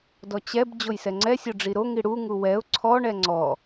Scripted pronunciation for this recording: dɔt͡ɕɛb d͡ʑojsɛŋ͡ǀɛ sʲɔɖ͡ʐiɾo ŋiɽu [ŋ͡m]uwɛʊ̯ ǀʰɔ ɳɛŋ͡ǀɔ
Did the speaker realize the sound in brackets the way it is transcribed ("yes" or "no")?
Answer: no